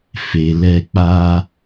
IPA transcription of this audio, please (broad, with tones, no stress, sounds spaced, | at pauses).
f e˨ l ɛ˧ k͡p a˦